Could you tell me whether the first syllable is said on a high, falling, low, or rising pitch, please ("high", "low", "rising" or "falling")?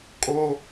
high